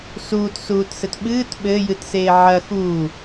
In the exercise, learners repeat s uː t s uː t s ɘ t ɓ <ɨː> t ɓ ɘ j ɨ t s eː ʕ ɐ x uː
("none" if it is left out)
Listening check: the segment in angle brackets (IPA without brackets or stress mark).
ɨː